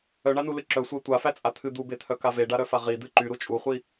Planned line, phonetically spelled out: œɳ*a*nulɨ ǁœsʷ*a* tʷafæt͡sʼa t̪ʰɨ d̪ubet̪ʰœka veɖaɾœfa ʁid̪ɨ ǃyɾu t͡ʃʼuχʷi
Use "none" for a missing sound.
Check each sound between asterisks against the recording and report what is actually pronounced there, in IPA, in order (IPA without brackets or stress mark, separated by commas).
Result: a, æ